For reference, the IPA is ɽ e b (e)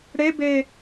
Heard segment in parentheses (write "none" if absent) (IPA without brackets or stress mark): e